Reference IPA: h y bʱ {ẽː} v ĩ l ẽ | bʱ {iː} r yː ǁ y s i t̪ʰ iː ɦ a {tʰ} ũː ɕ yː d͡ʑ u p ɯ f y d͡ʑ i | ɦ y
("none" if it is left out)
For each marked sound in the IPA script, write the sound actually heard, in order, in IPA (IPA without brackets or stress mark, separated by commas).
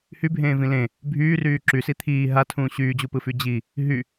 ẽː, yː, tʰ